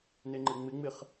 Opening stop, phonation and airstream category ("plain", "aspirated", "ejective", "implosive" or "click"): click